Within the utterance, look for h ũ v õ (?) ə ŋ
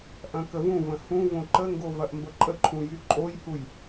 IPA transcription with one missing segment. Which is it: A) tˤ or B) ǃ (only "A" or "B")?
B